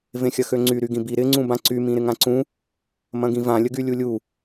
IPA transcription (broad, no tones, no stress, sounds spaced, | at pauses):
v ẽ xʲ ɐ x ø ŋ͡ǀ y ɾ y ɡ ĩ b i ɾ ɪ ŋ͡ǀ ũ b ã ǀ y m ĩ ɾ ɪ ŋ ã ǀ ũ | m ɐ̃ ɡ ĩ v ã lʲ ə ɡ y lʲ u lʲ u